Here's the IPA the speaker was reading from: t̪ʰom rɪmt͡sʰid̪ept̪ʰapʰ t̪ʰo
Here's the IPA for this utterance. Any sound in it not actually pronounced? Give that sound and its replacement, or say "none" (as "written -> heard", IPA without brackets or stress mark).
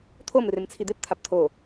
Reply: pʰ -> p